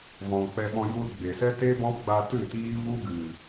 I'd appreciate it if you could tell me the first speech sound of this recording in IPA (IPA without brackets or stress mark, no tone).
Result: v